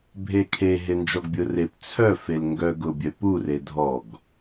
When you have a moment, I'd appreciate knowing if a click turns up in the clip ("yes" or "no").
no